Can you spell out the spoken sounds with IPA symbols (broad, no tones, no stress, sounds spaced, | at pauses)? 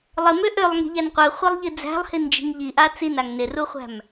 lˠ ɪ m ø ʔ ø lˠ ŋ i̤ ʎ æ n qʷ ɯ χʷ i lˠ ʎ i d͡z æ̤ lˠ h i n d͡ʒ i̤ ŋ ʎ i ʔ a t͡s i n a ŋ n ɪ r u χʷ æ̤ m